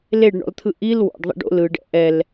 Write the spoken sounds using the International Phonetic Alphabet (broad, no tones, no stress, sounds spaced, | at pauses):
l e ɖ ɳ ɔ̰ l t̪ʰ ɯ ʔ i l w ɔ̰ ɖ ðˤ ḭ ɖ o̰ l ɯ ɖ ɛ̰ ʔ ɛ l